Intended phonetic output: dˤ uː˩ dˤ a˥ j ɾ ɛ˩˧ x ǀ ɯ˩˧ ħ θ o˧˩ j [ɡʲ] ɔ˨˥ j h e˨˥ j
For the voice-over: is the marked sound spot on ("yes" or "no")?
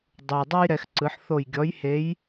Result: yes